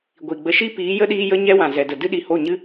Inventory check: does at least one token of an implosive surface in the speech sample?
yes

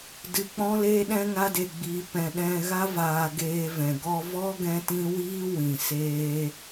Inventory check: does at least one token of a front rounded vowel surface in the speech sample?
no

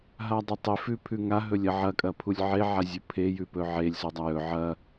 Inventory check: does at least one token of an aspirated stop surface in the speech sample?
yes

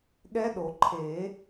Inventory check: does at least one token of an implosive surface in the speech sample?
yes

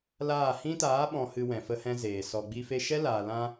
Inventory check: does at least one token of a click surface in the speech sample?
no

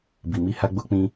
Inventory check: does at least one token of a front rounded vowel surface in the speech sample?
no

